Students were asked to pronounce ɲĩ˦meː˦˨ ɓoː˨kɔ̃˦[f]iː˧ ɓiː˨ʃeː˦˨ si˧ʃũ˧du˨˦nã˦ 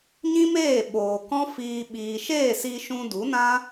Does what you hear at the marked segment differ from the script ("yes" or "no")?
no